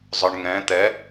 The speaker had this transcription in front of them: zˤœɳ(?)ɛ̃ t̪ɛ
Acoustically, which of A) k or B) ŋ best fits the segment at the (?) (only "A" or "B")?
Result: B